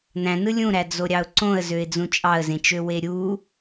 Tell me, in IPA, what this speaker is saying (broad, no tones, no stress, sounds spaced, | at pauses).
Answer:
n æ̃ n ɯ lʲ ũ ɾ æ d͡z o ɾʲ ɑ ʊ̯ ǀ õ ə̯ z ø ɪ̯ d͡z ũ t͡ʃʼ ɑ ə̯ z ẽ t͡ʃ ø w e ɾʲ u